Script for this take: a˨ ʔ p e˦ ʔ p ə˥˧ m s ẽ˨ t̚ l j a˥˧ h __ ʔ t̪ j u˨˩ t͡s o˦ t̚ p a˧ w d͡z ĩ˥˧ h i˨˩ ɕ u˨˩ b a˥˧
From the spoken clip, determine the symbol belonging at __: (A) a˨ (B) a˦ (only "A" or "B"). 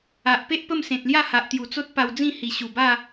A